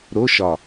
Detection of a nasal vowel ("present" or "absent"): absent